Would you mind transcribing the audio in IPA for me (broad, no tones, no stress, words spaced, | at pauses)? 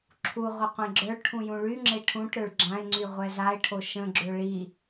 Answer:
ǁʰuʁʷə qʷẽɡ͡ǁœɭʈʰũ jũɭyŋ͡ǁe ʈʰũʈɾøɭ ɡ͡ǁãɪ̯ŋ͡ǀy ʁʷɛzaɪ̯ʈʰo ʃə̃ɡ͡ǁø ɭi